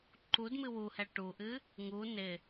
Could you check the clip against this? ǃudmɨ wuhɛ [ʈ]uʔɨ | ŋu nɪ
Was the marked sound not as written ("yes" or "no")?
no